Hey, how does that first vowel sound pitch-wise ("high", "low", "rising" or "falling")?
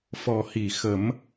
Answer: low